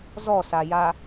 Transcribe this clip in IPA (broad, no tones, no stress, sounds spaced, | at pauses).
z ɔ s a j a